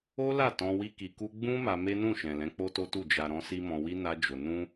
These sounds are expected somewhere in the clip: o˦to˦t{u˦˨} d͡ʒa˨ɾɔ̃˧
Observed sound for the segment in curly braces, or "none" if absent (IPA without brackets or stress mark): u˦˨